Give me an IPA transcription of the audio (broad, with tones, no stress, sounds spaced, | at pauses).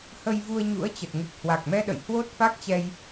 h ə˧ j v u˧ ə̯ ɲ ṵ˧˥ ə̯ t͡ɕ ə˨˩ t̚ ŋ u˨˩ k̚ h w a˨˩ k̚ m ɛ˧ ɗ ə̰˧˨ j h w o˦˥ t̚ f a˦˥ k̚ t͡ɕ ɛ˧ j